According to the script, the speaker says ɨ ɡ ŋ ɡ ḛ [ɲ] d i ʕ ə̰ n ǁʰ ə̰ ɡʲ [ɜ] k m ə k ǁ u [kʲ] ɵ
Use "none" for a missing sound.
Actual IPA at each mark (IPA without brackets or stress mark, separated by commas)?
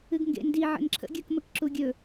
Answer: n, ɜ, ɡʲ